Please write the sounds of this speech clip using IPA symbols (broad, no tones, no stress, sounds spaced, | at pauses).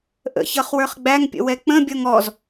ʔ ə̰ ç ʌ χ w ə˞ χ ɡ͡b æ ŋ pʲ ə̰ w ɛ k͡p ə̃ bʲ ʌ ŋ ɔ z